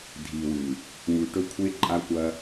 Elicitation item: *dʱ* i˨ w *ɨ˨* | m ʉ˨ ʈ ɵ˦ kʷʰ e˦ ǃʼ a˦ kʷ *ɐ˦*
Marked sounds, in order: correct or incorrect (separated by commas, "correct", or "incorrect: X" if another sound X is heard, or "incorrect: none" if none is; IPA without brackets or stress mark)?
correct, correct, correct